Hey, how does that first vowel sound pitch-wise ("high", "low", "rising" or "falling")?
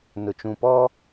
low